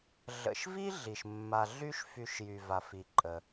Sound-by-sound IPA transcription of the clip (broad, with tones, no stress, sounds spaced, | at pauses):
ɮ ə̰˨ ʃ v i˥ ɮ i˩ ʃ mː a˨ ɮ y˥ ʃ f y˨ ʃ j y˩ v a˩ f i˩ ǃʼ ə˩